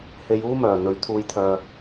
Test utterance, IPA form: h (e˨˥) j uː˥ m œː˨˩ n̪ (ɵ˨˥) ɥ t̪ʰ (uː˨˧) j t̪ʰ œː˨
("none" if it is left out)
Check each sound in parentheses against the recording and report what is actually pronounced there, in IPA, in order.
e˨˧, ɵ˨˥, uː˨˧

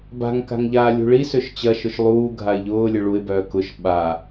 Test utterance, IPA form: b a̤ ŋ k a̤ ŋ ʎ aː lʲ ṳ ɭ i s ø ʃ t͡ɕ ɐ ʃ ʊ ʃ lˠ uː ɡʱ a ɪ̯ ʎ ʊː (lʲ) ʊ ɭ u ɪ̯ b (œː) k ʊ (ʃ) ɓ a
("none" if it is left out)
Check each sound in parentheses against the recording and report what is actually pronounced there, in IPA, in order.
lʲ, œː, ʃ

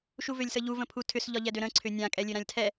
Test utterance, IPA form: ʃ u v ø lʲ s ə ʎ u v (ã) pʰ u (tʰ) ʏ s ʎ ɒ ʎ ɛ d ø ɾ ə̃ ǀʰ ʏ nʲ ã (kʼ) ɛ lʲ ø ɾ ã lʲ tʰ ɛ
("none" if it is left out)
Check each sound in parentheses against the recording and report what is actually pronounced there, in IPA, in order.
ə̃, tʰ, kʼ

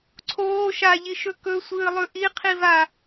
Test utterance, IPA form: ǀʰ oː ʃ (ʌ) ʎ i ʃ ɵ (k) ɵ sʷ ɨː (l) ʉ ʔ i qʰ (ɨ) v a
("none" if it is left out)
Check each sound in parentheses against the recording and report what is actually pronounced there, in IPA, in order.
a, k, lˠ, i

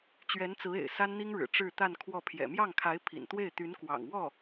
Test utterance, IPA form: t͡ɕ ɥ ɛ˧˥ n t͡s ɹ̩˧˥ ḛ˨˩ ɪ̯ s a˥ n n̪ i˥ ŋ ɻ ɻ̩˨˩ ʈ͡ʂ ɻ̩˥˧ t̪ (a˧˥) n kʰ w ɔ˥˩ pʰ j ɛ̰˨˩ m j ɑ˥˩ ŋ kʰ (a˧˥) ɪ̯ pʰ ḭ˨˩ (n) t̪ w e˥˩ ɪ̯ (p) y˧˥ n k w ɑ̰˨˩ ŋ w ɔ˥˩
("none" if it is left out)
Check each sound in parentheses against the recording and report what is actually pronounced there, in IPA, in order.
a˥˧, a˧˥, n, t̪

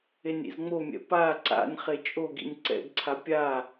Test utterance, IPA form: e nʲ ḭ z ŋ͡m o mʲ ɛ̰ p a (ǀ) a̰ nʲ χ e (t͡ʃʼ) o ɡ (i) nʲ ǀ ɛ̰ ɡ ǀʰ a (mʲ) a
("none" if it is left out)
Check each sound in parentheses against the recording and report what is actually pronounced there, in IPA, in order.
ǀ, t͡ʃʼ, ḭ, pʲ

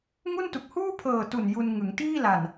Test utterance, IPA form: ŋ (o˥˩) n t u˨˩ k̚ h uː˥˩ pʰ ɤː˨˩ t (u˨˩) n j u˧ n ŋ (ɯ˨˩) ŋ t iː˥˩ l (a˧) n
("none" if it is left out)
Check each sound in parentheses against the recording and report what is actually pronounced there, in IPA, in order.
u˥˩, u˨˩, ɯ˩˦, a˨˩

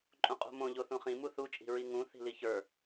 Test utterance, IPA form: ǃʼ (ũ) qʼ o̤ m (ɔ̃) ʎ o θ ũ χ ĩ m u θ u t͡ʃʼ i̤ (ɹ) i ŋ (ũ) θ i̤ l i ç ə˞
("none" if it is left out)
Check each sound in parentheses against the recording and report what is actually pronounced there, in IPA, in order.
ũ, õ, ɹ, ũ

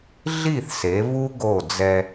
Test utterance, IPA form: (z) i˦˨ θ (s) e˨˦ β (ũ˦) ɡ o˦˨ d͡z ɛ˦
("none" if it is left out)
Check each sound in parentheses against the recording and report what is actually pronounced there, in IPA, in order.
ɮ, s, u˦

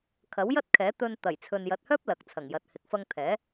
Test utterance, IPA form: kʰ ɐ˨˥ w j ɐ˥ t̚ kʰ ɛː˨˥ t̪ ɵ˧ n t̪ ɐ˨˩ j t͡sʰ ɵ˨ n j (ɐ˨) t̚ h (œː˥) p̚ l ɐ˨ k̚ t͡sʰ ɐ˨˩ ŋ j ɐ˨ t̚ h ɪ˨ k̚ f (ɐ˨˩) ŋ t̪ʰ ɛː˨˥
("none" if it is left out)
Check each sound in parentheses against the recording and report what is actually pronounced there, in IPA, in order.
ɐ˨, œː˥, ɐ˧

